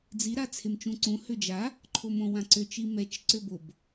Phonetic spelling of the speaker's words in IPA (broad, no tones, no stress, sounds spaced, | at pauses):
d͡z i ɾ a t͡sʰ e m t͡ʃ ũ ǀ ũ h ø d͡ʒ a | ǃʰ o m õ w ã ǀ ø t͡ʃ i m ɛ t͡ʃ ǀ ø b o b